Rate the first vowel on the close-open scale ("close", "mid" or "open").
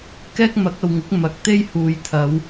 mid